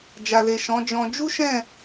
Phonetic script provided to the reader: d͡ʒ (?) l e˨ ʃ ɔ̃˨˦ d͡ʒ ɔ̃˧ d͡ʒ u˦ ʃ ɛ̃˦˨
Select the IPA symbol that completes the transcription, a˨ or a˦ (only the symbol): a˨